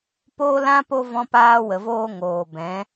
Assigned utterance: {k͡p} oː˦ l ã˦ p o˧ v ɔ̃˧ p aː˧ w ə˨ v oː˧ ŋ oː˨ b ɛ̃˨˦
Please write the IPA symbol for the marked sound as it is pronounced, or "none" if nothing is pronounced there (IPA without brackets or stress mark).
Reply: p